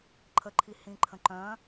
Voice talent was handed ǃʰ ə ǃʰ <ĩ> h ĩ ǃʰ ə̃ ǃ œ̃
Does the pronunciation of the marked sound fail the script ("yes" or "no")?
yes